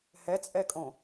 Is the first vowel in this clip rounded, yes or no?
no